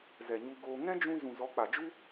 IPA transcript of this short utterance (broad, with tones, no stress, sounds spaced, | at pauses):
z ɛ˨ ɲ u˧ ɡ oː˧ ŋ ɛ̃˦ d͡ʒ ũ˧ z ũ˨ z ɔ˨˦ k͡p a˨ d͡ʒ u˦